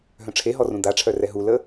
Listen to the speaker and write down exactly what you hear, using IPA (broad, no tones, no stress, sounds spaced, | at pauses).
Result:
ɦ œ̃ ʈ͡ʂʰ e ɦ ɔ r ũ d̪ a ʈ͡ʂʰ œ r ɛ ɦ u l ə